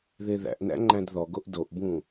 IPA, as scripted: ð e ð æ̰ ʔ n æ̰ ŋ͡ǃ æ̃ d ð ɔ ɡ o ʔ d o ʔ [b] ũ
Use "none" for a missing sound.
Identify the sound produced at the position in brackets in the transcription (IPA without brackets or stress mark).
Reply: b